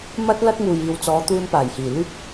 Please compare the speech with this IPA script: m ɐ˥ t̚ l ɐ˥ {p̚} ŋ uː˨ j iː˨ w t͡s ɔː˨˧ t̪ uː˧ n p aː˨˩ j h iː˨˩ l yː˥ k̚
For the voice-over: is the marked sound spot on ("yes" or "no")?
no